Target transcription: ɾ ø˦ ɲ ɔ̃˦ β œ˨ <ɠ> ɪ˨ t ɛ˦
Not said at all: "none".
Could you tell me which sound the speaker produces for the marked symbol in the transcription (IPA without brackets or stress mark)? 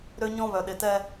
ɗ